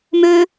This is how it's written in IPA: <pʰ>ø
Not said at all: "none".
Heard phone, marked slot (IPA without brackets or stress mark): m